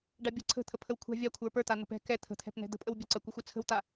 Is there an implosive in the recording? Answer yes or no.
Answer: no